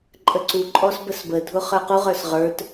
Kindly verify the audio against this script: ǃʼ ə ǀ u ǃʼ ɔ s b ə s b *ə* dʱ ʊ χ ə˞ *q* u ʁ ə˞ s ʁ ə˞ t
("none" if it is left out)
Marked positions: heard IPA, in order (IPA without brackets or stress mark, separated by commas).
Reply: ə, q